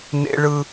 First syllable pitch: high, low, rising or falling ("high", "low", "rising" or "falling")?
high